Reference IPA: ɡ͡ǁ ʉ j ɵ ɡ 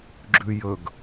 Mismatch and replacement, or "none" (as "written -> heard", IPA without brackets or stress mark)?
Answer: none